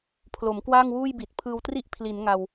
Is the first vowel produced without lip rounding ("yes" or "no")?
no